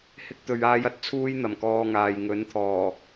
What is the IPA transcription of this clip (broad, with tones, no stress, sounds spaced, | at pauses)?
h ɪ˧ k̚ t̪ ɵ˨ ɥ aː˧ j ɐ˨ t̚ t͡sʰ uː˥ j n̪ ɐ˨˩ m k ɔː˧ ŋ aː˨ j ŋ ɵ˨˥ n t̪ʰ ɔː˨˩